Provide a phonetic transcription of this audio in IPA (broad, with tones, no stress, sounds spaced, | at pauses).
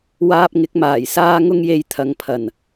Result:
w aː˧ p̚ ŋ ɪ˨˥ k̚ m aː˨˩ j s aː˧ ŋ ʊ˧ ŋ j e˨˧ j t̪ʰ ɐ˨ ŋ pʰ ɐ˨˩ n